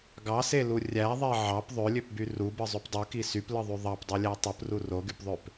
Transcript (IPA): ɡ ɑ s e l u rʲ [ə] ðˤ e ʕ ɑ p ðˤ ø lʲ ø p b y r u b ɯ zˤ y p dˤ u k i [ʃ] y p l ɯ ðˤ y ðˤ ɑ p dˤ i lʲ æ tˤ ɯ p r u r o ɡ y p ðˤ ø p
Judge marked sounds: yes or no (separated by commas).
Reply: no, no